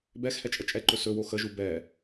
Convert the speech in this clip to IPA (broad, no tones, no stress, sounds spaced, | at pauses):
b ɛ x h ɛ t͡ʃʼ ə t͡ʃʼ ɛ ǃ ɵ s ɵ w o x ə ʒ u b ɛ